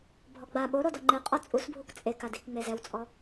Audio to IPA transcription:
bʱ ɔ ɡ͡b a ɓ o ɾ o d ɔ ŋ͡ǃ ɪ qʼ ɔ t͡sʼ u s bʱ u k t͡sʼ e k a d i k ŋ͡m e z ɛ w t͡sʼ ɔ

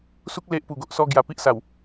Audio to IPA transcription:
s u˦ k̚ l e˦ ʔ p u˨˩ ɡ o˨ ʔ s ɔ˦ ɡ j a˧ p i˦ ʔ s a˨˩ w

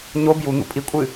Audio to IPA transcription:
ɲ o b j u n̪ ṵ pʼ i kʷʼ ɨ

